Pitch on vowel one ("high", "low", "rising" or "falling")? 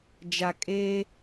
low